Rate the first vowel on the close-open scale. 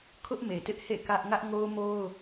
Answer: close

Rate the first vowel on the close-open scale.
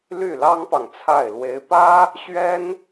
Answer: close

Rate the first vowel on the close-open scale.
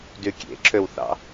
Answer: close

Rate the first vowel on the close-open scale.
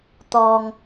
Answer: mid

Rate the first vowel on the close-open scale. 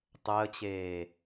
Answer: mid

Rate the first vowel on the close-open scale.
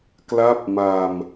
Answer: open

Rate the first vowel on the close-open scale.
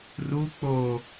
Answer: close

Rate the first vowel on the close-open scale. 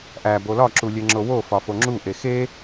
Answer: open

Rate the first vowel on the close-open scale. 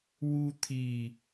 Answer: close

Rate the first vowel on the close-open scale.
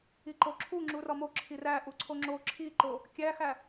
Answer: close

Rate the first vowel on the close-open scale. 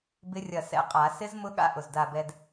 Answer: close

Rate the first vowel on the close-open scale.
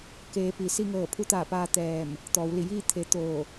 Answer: mid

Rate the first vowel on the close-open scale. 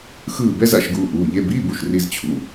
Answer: close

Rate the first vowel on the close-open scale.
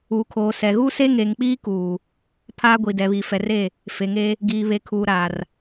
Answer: close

